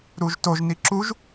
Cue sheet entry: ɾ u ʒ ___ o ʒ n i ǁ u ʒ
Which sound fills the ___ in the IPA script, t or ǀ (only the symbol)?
t